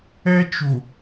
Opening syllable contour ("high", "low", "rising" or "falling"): high